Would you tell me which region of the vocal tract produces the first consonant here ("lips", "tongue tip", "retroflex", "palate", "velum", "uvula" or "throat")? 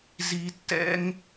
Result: tongue tip